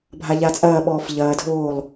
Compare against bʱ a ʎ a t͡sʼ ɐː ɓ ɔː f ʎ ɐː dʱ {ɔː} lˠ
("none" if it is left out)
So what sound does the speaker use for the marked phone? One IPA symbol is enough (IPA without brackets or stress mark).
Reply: oː